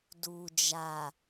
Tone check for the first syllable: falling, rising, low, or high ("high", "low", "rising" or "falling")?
low